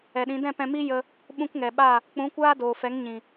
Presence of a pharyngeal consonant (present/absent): absent